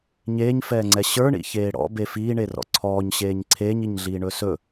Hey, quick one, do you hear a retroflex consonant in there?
yes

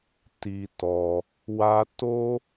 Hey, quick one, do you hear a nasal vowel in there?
no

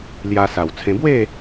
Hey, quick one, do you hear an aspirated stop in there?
yes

